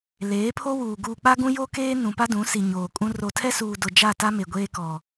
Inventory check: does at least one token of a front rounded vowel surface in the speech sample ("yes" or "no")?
no